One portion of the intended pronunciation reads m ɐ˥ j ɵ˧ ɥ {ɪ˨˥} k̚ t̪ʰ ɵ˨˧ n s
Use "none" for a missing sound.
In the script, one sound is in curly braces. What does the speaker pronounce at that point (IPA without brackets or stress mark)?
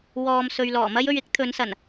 ɪ˨˥